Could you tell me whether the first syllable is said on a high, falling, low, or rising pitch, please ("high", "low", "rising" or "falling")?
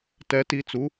rising